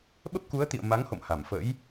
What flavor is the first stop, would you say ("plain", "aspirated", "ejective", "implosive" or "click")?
implosive